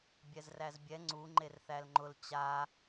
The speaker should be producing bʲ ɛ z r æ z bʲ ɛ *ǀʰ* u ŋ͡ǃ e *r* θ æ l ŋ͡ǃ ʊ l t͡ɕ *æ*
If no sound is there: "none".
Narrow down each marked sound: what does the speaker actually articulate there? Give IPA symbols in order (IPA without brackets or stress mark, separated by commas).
ŋ͡ǀ, r, a